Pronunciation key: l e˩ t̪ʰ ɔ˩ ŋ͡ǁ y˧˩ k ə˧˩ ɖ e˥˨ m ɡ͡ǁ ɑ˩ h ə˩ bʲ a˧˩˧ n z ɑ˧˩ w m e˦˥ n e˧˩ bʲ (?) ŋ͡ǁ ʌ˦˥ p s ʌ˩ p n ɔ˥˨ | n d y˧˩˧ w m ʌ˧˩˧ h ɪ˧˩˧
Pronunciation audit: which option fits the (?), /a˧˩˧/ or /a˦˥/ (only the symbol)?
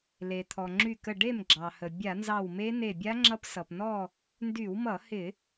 a˦˥